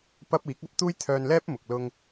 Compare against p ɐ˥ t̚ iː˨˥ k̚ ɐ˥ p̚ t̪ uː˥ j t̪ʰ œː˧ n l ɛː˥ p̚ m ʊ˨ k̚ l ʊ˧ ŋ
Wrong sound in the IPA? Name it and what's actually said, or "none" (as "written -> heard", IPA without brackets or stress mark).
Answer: t̚ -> p̚